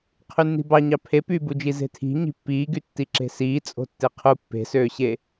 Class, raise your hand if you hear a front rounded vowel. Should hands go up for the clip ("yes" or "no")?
yes